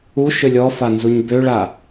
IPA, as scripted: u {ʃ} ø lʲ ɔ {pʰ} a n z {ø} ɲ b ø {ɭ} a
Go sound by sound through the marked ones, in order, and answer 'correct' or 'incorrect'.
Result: correct, incorrect, incorrect, correct

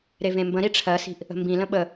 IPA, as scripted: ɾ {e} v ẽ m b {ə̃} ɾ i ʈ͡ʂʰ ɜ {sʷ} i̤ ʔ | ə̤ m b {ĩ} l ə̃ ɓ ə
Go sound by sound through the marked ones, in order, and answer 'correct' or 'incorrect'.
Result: correct, correct, incorrect, correct

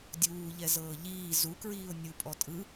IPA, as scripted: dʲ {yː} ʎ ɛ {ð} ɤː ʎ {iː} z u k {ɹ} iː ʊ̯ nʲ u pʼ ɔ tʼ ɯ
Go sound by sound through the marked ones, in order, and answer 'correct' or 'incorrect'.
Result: incorrect, incorrect, correct, correct

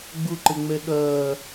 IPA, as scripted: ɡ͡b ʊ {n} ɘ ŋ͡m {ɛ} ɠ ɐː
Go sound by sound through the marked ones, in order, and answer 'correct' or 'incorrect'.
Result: incorrect, correct

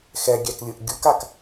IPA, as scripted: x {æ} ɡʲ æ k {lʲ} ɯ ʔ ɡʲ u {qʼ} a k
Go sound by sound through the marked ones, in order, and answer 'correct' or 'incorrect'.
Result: incorrect, correct, incorrect

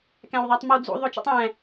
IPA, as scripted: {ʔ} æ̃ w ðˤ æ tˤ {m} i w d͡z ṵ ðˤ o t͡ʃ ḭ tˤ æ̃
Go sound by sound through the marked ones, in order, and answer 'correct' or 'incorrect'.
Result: incorrect, correct

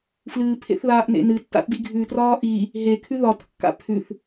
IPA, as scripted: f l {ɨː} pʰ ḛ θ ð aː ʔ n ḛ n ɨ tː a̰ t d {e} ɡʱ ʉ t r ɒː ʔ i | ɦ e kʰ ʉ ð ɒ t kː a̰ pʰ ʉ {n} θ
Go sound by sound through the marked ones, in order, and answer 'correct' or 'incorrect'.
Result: correct, incorrect, incorrect

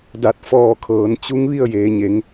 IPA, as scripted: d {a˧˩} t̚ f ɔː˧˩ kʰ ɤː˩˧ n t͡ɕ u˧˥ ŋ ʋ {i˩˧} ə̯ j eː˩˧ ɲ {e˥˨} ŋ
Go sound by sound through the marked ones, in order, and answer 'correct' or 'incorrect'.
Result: correct, incorrect, incorrect

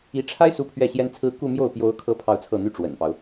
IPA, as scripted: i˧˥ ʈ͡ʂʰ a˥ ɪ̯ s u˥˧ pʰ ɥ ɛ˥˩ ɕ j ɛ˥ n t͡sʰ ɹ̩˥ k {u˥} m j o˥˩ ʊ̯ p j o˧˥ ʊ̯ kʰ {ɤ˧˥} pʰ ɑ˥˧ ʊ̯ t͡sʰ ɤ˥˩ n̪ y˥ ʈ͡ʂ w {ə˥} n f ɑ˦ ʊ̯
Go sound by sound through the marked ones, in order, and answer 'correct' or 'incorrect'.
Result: incorrect, correct, incorrect

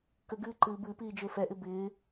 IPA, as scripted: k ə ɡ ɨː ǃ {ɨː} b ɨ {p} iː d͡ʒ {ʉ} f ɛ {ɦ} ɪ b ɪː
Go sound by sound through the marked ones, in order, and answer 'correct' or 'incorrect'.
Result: correct, correct, incorrect, incorrect

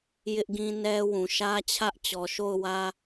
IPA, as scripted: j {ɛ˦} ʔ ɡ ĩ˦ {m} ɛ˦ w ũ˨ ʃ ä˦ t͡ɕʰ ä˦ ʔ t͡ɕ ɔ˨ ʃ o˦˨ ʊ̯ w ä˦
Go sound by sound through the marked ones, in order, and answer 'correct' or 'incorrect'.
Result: incorrect, incorrect

